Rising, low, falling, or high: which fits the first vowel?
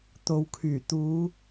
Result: low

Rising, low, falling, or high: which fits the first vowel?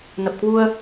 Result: low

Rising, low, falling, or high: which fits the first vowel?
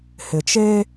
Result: low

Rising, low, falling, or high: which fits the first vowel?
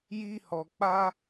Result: high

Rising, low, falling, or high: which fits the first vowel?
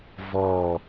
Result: low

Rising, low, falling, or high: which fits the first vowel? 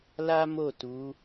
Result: high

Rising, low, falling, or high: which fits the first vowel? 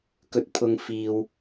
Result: high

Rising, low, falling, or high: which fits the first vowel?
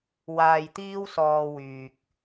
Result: low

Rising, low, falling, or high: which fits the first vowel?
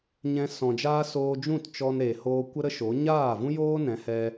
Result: high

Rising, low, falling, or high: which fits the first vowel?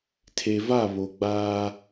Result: low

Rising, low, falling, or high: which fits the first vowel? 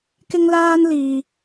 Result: high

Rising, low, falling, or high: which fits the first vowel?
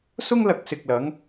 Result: high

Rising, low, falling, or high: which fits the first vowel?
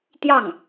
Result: falling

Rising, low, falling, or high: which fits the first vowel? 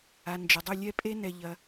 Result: low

